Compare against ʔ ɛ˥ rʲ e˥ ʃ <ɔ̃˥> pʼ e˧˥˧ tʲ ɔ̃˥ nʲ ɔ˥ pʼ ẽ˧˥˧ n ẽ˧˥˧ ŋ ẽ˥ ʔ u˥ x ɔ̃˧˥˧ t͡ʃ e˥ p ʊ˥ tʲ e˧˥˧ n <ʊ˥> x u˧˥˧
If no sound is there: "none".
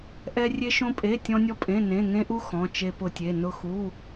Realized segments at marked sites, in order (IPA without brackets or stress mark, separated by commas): õ˥, ʊ˥